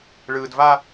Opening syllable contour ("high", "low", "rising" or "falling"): low